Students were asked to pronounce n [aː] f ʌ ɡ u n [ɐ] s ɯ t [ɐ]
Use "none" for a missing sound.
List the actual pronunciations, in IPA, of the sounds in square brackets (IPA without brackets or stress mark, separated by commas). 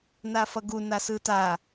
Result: a, a, a